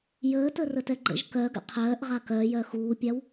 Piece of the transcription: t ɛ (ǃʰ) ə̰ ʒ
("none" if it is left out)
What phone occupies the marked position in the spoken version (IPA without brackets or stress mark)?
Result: ɡ͡ǃ